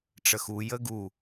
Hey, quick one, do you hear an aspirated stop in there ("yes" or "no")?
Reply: no